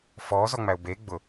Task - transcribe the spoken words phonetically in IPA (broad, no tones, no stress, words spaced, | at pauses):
fɔːzɔŋ͡mæʊ̯ be ɡ͡bʊ